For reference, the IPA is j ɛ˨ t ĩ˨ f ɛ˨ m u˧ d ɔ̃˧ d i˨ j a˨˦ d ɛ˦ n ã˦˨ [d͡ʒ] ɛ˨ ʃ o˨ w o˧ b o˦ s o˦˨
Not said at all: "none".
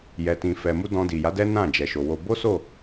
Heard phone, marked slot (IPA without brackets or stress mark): d͡ʒ